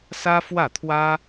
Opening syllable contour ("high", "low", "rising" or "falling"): high